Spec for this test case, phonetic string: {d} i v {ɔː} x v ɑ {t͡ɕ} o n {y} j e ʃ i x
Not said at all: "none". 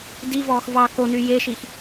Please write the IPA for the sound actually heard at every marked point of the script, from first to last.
d, ɔː, k, y

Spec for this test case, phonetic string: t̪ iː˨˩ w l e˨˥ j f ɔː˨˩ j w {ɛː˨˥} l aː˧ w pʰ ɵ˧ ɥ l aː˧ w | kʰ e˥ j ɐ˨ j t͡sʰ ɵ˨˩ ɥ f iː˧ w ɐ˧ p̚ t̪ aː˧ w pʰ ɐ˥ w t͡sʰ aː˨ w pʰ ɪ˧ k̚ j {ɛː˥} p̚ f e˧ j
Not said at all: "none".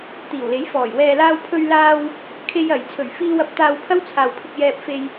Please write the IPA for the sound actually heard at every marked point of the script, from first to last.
ɛː˨, ɛː˧

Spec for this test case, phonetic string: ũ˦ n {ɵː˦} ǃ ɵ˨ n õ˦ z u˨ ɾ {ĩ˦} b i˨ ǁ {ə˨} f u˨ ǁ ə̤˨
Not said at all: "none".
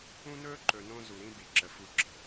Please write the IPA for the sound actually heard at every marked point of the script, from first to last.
ɵː˦, ĩ˦, ə˨

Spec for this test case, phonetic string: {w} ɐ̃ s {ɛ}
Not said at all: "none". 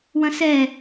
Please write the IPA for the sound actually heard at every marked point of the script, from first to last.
w, ɛ

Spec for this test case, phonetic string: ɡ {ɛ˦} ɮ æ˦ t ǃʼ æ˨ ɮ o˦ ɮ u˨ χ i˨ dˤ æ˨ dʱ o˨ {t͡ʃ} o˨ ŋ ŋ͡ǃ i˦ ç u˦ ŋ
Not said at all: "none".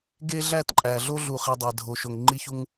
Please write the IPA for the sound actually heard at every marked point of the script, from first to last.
e˦, ʃ

